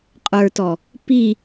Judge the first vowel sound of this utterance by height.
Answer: mid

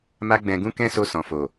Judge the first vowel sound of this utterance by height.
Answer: low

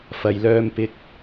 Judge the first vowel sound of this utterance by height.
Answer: low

